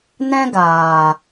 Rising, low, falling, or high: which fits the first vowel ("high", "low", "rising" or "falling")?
high